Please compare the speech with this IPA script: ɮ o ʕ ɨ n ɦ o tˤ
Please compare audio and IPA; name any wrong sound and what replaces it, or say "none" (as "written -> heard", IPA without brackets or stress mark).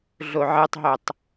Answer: n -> tˤ